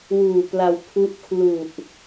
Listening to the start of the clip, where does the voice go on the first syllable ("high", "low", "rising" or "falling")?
low